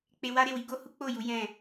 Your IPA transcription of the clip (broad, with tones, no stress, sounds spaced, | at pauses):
k͡p e˧ w a˦ ɾ e˦˨ w i˧ ɡ o˦ h u˦ k͡p o˦˨ j u˨˦ j ɛ̃˦˨